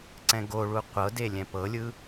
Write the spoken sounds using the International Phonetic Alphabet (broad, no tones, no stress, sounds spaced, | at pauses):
ǀ ɛ̃ ɡ o ɭ u qʷ ɤ d e lʲ ɛ̃ p ɤ lʲ ɯ